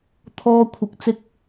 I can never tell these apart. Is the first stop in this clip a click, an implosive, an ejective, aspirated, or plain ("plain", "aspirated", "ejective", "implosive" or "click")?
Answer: aspirated